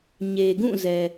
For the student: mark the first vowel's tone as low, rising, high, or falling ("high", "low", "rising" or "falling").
low